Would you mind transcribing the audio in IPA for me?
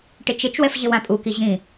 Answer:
ʈ ɪ t͡ʃ ɪ t͡ʃ w ɛ f ʑ ɪ w ã pʼ u k i ʑ ĩ

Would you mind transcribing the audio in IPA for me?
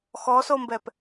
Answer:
x ɔ s o m b ɛ p

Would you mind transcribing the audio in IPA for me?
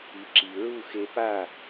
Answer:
i˩˥ ǁ i˩ ɹ u˥˩ x e˧ p a˥˩

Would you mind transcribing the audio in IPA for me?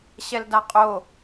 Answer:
ɕ ɛ l d a qʼ o

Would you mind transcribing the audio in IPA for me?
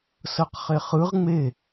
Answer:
s ɤ q χ e χ ɯ ʁ ŋ͡m e

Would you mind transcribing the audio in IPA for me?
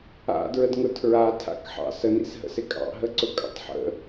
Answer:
a̰ d ɹ ə d ŋ ʊ tʰ ɹ a tʰ a̰ k ħ ɑ̰ s ə n ḭ s ɦ ə̰ s ɪ kʼ ɑ̰ ɦ ə ǀ ʊ kʼ ɑ̰ tˤ ħ ə̰

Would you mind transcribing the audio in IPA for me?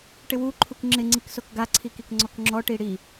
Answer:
ʈ ɪ w u ǃʰ u k ŋ͡ǁ ɪ ŋ͡ǀ i k s o k ɡ a ǀʰ i k i k ŋ͡ǀ ɔ k ŋ͡ǁ ɔ ʈ i ɽ i

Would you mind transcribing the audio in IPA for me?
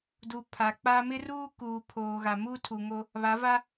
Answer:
d u˨ pʰ a˨ k͡p a˦ m ɪ˦ r uː˦ k uː˨ pʰ oː˨ ɣ a˨ m uː˦ tʰ u˨ ŋ o˦ | β a˨˦ v a˦

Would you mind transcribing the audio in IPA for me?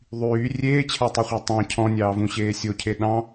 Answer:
ðˤ yː rʲ eː t͡ɕʰ æ tˤ y χʷ æ tˤ ɑ̃ cʰ ɔ̃ nʲ ɑː v ũ ɕ eː sʲ o cʰ e ɗ ɑ̃

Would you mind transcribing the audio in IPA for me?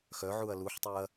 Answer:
x œ ʕ u ɐ̯ l u ħ tˤ ø ɐ̯

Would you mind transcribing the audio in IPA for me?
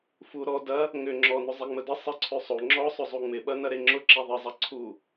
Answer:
f u ɾ ɔ d ɐ | ŋ ʏ ŋ͡ǁ ɔ n ʊ zˤ e ŋ͡m ə d ə sˤ ɪ ǀʰ ø sˤ o ŋ͡ǁ ɔ sˤ ʏ zˤ u ŋ͡m ɪ ɓ ɐ n ɐ ɾ e ŋ͡ǁ ʊ ǁ e ðˤ ɪ zˤ ɐ ǀʰ u

